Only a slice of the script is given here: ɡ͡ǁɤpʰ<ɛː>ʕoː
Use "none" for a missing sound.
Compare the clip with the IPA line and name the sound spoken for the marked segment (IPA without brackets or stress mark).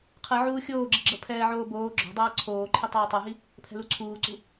ɛː